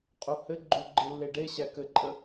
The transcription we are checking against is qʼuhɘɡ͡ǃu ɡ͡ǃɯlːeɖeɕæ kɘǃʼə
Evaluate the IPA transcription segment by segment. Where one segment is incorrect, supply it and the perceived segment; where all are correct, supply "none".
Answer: none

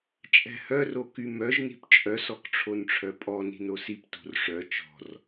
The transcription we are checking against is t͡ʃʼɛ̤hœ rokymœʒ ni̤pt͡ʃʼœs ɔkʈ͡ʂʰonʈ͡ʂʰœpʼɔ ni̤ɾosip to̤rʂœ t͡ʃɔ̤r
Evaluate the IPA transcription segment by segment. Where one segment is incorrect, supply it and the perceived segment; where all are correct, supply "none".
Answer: ɾ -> n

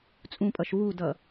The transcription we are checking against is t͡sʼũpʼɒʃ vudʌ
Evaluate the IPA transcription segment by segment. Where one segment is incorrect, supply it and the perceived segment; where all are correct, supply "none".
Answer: ɒ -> ʌ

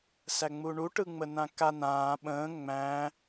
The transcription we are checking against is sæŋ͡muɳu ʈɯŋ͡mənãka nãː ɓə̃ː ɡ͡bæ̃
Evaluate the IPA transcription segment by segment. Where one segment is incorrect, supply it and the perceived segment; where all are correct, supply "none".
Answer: ɡ͡b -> ŋ͡m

